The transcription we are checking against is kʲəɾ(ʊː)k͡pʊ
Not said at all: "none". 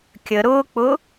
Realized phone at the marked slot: ʊː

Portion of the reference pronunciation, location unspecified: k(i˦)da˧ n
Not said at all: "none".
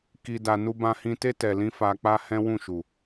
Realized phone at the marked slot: i˧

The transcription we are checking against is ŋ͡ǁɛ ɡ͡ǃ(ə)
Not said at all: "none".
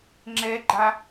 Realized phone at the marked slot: a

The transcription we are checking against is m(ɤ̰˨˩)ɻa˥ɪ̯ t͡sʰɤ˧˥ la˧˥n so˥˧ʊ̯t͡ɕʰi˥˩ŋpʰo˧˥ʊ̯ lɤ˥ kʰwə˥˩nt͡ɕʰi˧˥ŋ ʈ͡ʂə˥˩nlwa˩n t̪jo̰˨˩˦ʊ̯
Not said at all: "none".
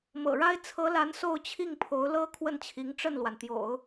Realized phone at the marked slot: ɤ̰˨˩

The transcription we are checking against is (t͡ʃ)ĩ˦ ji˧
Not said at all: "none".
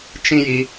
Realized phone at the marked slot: t͡ʃ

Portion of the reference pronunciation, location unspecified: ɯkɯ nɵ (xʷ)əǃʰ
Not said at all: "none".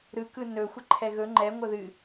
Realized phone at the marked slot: xʷ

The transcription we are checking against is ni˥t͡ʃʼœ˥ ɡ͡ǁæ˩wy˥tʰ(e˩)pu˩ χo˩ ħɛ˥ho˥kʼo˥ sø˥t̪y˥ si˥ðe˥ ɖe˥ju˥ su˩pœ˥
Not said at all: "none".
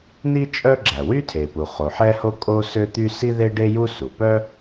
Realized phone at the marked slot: e˩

